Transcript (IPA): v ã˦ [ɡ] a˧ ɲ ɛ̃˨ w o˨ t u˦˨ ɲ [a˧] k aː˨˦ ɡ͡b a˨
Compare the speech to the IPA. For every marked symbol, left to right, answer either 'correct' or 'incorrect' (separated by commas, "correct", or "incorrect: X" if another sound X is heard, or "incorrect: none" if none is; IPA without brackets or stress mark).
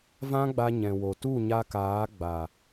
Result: incorrect: ɡ͡b, correct